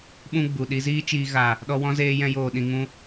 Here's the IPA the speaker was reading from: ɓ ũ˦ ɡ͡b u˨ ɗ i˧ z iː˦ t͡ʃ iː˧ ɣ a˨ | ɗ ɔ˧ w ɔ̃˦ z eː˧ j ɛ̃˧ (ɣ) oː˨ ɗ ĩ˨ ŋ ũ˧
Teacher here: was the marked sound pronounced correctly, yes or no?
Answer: no